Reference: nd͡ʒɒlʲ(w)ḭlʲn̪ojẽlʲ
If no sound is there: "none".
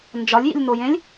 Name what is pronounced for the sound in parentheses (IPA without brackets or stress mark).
j